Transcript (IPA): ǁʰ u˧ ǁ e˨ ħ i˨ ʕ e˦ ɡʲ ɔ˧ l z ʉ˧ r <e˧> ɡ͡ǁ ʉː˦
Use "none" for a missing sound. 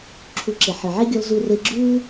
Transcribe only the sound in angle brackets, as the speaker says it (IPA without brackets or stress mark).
e˧